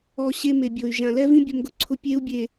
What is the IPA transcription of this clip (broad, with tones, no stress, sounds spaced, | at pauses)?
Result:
ɔ˨ ɕ e˦ m e˨ bʲ o˨ y̯ ʒ ã˨ l ɛ˦ v ĩ˦ bʲ ʊ˦ m ɡ ʊ˦ ǀʰ ʊ˦ pʲ e˦ u̯ bʲ e˨